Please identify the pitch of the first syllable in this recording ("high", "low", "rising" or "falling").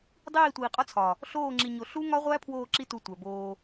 falling